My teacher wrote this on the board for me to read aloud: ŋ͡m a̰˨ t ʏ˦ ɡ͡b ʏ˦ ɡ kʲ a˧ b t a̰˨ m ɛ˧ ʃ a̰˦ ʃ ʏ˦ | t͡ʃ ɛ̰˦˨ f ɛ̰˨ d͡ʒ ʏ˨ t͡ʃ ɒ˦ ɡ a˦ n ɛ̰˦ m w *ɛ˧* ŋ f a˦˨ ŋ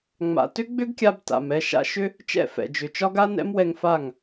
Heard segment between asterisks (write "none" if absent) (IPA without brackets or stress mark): ɛ˧